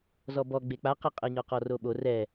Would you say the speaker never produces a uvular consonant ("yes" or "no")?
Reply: no